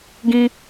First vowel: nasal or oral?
nasal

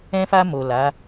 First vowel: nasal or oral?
nasal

